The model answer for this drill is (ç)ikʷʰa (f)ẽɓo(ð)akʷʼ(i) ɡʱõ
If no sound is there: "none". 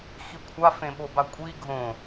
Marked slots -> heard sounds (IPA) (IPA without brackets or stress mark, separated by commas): x, f, b, i